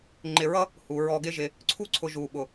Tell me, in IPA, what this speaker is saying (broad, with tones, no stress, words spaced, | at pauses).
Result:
ŋ͡ǃɪ˧˩ɹʌ˥ | hu˩˧ ɹɔ˧ɡɪ˥ʒɪ˧ | ǀʰu˥ǀʰʊ˧ ʒu˧˩ ɓʊ˧˩